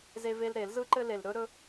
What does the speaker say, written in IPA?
z e˧ v e˧ l ɾ e˧˩˧ l z ɯ˧ ǃ ɘ˧ l e˩ l ɾ ɵ˧ ɾ ɵ˧

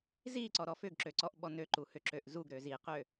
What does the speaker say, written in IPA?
z i ǀ ɔ ɾ ɔ f ʏ ɡ ǁ ø ǀ ɔ ʔ ɓ ɔ n ø ǃ u h ʏ ǁ ø ʔ z u ɡ ɾ ø z i q ø

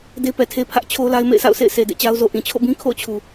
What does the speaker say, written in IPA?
d e˦ p ɛ˨ tʰ e˦ pʰ ä˦ ʔ t͡ɕʰ o˦ l a˦ ɪ̯ m ḛ˦˨ ɪ̯ sʰ a̰˦˨ ʊ̯ sʰ ḛ˦˨ ɪ̯ s e˨ d ḛ˦˨ t͡ɕ a˦ ʊ̯ z o˨ ʔ ĩ˨ t͡ɕʰ o̰˦˨ b ĩ˦ kʰ o̰˦˨ ʊ̯ t͡ɕʰ u˨

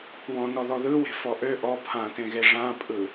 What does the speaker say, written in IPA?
w ɔ̃ n ɔ ð ɔ ð ɯ w e̤ f ɔ ʔ ø ʔ ɔ pʰ ã t ẽ ɣ e ʐ ã pʼ ɯ

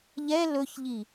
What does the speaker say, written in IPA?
ʎ ɛ l ɵ ç ʎ i

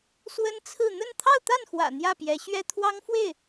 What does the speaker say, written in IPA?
s w ə˥ n t͡sʰ ɹ̩˥˧ n̪ ə˥˧ n t̪ʰ ɑ˥˧ ʊ̯ t̪ a˥˩ n x w ä̰˨˩ n̪ j ä˥˩ p j ɛ˧˥ ɕ ɥ ɛ˥ t̪ʰ w ɑ˥ ŋ f w e˥˩ ɪ̯

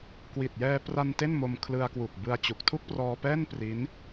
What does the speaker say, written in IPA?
k w i˨˩ t̚ j ɛː˧ p r a˧ n t e˥˩ n m o˧ m kʰ l ɯ˧ a̯ k w u˨˩ k̚ b ɯ˧ a̯ t͡ɕ u˨˩ k̚ tʰ u˥˩ k̚ p r ɔː˧ p ɛː˥˩ n p r i˦˥ n

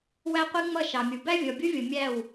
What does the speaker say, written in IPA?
w æ˦ qʷ i˦ ŋ͡m ʌ˦˨ ʃ ɑ˨ mʲ u˨ b æ˦ vʲ ɔ˨ bʲ u˦ vʲ ʊ˨ mʲ æ˦˨ w

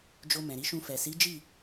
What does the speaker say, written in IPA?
d͡ʒ o˧ m ɛ̃˨ ɾ i˨˦ ʃ ũ˧ f ɛ˨ s i˨˦ d͡ʒ i˦˨

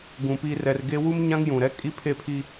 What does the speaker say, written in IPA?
ɡ ũ˨ p i˨ r ɛ˨ r ɡ e˦ w u˦ m ɲ ã˦ ŋ j ũ˨ ɾ ɛ˦ kʼ i˦ pʰ e˦˨ pʰ i˦

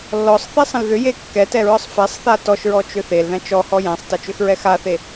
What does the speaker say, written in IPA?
lː ɔ sˤ θ e sˤ ə̃ l ð ʏ j e kː ɛ t ɛ ɹ ɒ sˤ f ɛ sˤ θ a t ɔ ʃ ɹ ɔ t͡ʃ ʏ θ e l ð æ̃ t͡ʃ ɔ h ɔ j æ̃ sˤ t ɐ t͡ʃ ʏ x ɹ ɛ x a θ e

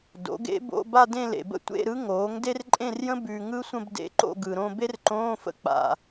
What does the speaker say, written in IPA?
d o̰˩˥ ɡ ḛ˧˥ b o̰˧˥˧ b a˥˧ d ẽ˥˧ l ḛ˨ b ə̰˥ tʷ ḛ˧˥˧ ɾ ɯ˧˥ ŋ oː˩˥ ŋ d e˥ r ǃʼ ẽ˥˧ r j ə̃˥ b ʉ˨ ŋ ɯ˥ sʷ ə̃˥˧ b d ḛ˧˥˧ ǃ o̰˥˧ ɡ ɯ˨ ɾ õ˥˧ b e˥ r ǃ õː˧˥˧ f ə̰˧˥ k͡p a̰˨

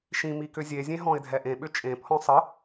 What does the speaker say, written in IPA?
ʃ ĩ m i k ʏ zʲ e zʲ ẽ ɦ ɔ̃ ɪ̯ dʱ ɛ ʔ ẽ ɓ ʏ t͡ʃʼ ẽ pʰ ɔ̃ sˤ ə

